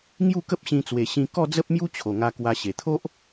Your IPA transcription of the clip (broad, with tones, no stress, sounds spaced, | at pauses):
ŋ j u˥˧ k ə˦ p̚ ɕ ĩ˧ t͡s w e˨˩ ɕ ĩ˧ k ɔ˥˧ d͡z ə˦ p̚ m j u˦ t͡ɕʰ o˨˩ ŋ a˧ k w a˧ ɕ e˨˩ t̪ʰ o˦ ʔ